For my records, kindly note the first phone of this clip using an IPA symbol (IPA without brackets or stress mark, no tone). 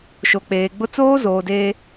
ʃ